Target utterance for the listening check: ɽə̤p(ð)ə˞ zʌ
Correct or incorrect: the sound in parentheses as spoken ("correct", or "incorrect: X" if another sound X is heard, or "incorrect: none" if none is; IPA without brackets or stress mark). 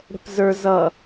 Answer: incorrect: z